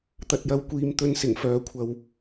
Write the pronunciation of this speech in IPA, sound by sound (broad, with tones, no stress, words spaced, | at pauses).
t̪ɐ˧t̚jɐ˧wkʷiː˧m t̪ɵ˧nsɪ˨˩ŋfœː˨kʷʰɐ˨w